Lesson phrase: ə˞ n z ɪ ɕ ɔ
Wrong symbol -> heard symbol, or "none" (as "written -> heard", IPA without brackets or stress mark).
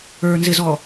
ɕ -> z